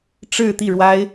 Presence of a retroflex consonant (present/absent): present